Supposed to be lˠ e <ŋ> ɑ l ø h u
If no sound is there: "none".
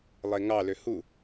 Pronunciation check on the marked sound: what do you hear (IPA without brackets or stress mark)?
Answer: ŋ